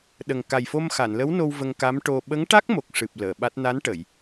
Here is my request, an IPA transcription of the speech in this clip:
ɗə˨˩ŋ ka˨˩jfo˧m xa˨˩˨nlə˧˥wno˧w və˧ŋka˧˥mʈo˧ ɓə˧˥ŋʈa˦˥k̚mo˨˩k̚ʂɨ˨˩p̚ ləː˨˩˨ɓa˦˥t̚ na˧˥nʈə˨˩˨j

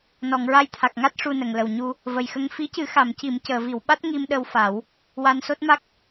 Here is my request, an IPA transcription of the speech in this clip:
nɔ˨˩˨ŋɹa˧jt̪ʰa˨˩k̚ŋa˦˥t̚ ʂu˧nə˨˩˨ŋ lə˨˩wɲu˧ | və˨˩jxə˧ŋ fi˧˥cɨ˨˩˦ xa˨˩˨mci˨˩˨m cəː˨˩˨vi˨˩˨wɓa˦˥t̚ ŋi˧mɗə˧wfa˨˩˦w | wa˧nso˦˥t̚ma˦˥k̚

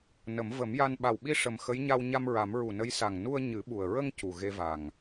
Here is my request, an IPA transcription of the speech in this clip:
nə˨˩˦m və˨˩˦mja˧n ɓa˨˩wɓi˧ ʂə˨˩mxə˧˥jɲa˧w ɲa˧mɹa˨˩˦m ɹu˨˩nə˧˥jsa˨˩ŋ nu˧ə̯ ɲɨ˨˩˦ɓu˨˩ə̯ ɹə˧ŋ cu˨˩ɣe˧va˨˩ŋ

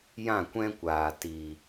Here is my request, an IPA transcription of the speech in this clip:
jã˦˨kʷɛ̃˦kʷaː˨ ti˨

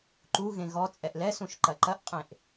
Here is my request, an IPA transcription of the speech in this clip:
ǃuɣẽ ɣɔ t͡sʼɛʔlɛsũʃ ǃɐǃɐʔqʼẽʔ

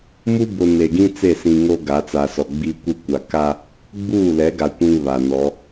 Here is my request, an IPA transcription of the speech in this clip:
mu˦bʊ˨ ne˨ɡĩ˦ t͡se˦˨sĩ˨ŋo˦ ɡa˨˦t͡sa˨sɔ˨ ɡ͡bi˦kʷi˦kʷa˨ ka˦ | ɡ͡buː˦˨lɛ˨˦ɡa˨ kʷĩ˦βa˨ nɔ˨˦

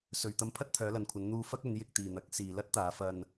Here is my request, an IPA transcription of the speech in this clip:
sɵ˨ɥt̪ɐ˧m pʰɐ˥t̚t̪ʰœː˨˧lɐ˨nkʷʰɐ˨˧n n̪uː˧fɐ˥k̚ ɵ˨˧njɪ˧k̚t̪iː˨n̪ɐ˨˥k̚ siː˨lɐ˥t̚t̪aː˨˧ fɐ˧n

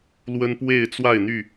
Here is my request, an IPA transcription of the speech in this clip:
lwə˦npwe˥˨ɪ̯ t͡swa˥˨ɪ̯n̪y˥˨

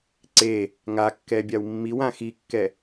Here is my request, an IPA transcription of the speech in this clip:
ǀe | ŋakːɛ bʲawmːiwã xikːɛ

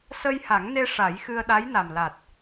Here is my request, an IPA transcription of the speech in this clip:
sə˧jha˨˩˦ŋne˧ ʂa˨˩˦j xɨ˧ə̯ɗa˧˥jna˨˩mla˨˩t̚

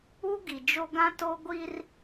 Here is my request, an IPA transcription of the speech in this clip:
u˦ɡi˨d͡ʒo˦ ɡã˦to˦ ɡʷi˦r

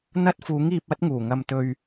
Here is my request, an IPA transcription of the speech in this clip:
n̪ɐ˥t̚fuː˨˥ŋiː˧p̚ɐ˥t̚ ŋuː˨˩ŋɐ˧mt̪ɵ˧ɥ

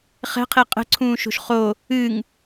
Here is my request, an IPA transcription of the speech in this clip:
χɛ̤qʰe qʼə̤ǀʰũːʃo̤ʃ χo | ɨŋ

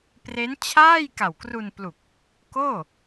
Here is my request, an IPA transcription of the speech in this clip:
pre˦˥nt͡ɕʰaː˥˩j ka˨˩wkru˧nplu˨˩k̚ | koː˥˩

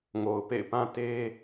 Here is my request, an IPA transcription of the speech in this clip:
ŋo˨ʊ̯ pḛ˦˨ɪ̯pã˦te˦

